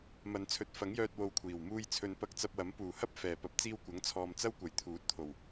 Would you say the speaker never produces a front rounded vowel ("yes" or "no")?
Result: no